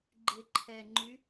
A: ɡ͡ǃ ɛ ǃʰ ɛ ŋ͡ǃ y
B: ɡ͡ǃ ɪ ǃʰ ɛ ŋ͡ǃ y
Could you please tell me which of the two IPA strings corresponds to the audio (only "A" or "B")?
B